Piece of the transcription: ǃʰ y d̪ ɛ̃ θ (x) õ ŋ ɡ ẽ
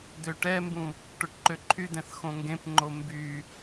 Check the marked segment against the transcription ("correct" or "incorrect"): correct